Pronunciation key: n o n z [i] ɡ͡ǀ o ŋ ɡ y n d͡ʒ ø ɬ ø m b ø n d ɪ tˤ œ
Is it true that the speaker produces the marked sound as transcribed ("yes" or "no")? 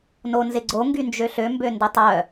no